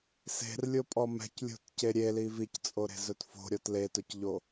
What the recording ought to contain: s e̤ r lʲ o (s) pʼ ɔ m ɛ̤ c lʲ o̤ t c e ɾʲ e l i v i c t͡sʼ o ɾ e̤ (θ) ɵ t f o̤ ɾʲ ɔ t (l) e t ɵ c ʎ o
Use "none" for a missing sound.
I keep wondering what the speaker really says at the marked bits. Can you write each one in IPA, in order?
none, z, l

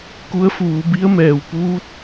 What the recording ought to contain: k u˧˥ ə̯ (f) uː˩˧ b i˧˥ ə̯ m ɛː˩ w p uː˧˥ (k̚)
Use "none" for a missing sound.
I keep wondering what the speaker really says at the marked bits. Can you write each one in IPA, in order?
f, t̚

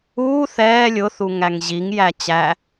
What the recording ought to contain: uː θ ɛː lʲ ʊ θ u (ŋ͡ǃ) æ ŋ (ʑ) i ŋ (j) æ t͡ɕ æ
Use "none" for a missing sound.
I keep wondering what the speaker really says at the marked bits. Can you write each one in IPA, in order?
ŋ, ʑ, j

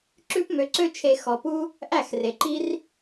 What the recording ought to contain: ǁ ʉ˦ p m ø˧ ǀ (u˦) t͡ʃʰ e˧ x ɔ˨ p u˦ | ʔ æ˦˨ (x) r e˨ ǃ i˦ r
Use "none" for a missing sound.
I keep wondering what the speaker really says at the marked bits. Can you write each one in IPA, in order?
ø˦, x

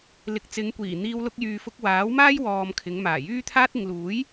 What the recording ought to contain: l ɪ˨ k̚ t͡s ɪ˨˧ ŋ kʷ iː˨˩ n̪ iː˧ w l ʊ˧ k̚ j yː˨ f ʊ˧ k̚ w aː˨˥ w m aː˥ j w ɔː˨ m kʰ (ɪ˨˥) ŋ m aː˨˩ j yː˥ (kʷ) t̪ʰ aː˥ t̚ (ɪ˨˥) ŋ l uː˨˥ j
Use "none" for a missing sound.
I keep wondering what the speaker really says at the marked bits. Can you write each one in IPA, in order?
ɪ˨˧, none, ɪ˨˧

